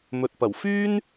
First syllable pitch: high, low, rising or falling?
low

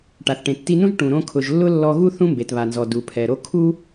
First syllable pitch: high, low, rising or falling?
low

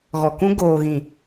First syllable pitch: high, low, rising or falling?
low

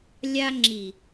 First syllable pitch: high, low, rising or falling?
high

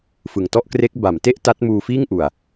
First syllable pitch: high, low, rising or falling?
low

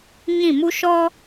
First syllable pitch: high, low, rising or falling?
falling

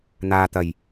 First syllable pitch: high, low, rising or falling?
low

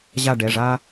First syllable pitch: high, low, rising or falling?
falling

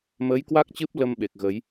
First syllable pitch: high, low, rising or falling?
rising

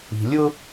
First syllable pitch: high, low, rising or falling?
low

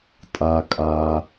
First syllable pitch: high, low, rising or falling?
low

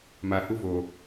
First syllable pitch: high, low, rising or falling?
low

